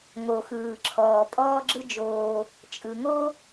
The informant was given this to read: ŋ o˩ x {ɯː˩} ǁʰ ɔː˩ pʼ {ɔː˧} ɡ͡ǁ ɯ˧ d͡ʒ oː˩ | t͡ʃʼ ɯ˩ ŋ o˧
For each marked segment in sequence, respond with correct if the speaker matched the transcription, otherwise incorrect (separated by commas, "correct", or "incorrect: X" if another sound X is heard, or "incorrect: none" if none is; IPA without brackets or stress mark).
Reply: correct, correct